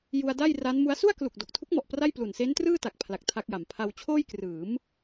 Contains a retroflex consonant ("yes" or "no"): no